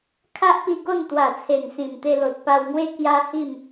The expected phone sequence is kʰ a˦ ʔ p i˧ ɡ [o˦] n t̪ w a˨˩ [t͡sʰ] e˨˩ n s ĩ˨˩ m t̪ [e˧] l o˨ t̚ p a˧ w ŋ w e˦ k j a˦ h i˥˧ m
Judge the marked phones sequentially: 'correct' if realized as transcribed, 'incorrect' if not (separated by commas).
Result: incorrect, correct, correct